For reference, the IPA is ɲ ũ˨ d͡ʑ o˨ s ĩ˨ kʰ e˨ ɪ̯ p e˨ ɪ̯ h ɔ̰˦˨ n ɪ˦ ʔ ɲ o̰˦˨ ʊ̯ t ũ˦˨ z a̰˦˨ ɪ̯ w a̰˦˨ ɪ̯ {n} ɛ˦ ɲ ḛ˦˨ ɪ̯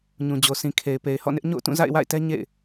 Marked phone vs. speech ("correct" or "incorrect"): incorrect